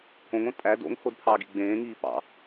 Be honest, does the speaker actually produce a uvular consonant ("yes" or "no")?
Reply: no